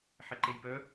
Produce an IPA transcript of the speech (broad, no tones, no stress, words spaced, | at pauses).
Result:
ħɛǃejpœ